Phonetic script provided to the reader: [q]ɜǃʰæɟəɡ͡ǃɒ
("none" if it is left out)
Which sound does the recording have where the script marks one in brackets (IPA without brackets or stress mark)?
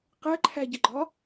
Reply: q